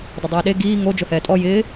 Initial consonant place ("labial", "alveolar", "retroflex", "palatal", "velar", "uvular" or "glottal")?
alveolar